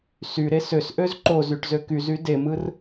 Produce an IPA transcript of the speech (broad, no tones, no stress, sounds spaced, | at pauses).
s y ɾ e s ø s ʔ ø z ǃ o z y ʈ z ø k y z y d e m ɯ r